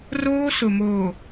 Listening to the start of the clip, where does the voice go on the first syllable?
high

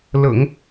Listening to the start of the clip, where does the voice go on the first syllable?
low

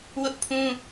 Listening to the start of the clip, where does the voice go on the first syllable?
high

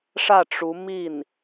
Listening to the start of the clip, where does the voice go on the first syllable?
falling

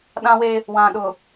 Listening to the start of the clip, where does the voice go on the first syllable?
high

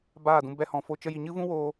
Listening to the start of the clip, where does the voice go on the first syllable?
falling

